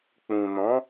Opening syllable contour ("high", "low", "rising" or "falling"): low